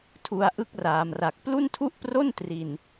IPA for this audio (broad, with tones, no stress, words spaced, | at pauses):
tʰu˧a̯ʔɯ˥˩k̚raː˩˦mra˨˩k̚ plu˥˩ntʰu˥˩ʔpro˥˩n tri˨˩n